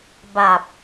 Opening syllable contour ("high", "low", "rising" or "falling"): low